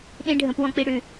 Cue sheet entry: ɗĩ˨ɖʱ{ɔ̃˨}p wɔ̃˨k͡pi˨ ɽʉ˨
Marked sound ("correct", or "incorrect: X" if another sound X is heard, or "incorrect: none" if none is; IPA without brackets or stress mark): incorrect: ə̃˨